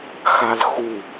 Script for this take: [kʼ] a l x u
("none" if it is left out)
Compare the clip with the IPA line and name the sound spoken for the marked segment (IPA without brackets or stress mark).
x